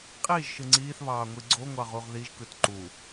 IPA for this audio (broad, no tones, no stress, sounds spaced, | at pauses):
qʼ iː ʒ ʃ ɯ ŋ͡ǀ iː θ β ɑː ŋʷ i ɡ͡ǀ o ŋʷ ɑ ʁ u ʁ ð i ʒ k ɯ t ǃ u